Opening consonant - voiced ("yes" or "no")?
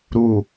yes